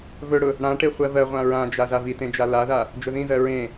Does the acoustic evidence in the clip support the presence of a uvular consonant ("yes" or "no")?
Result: yes